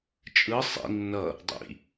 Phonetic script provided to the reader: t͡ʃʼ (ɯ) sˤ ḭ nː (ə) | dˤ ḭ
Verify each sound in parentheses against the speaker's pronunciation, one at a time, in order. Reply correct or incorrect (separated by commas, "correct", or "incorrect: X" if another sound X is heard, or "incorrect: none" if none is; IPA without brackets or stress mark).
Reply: correct, incorrect: ʌ